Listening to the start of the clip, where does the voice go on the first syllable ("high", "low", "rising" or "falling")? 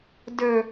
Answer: low